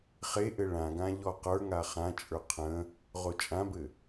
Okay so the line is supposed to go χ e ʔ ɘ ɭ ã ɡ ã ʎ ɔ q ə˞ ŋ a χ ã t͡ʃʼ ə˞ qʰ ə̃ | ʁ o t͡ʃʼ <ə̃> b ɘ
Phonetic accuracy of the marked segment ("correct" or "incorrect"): incorrect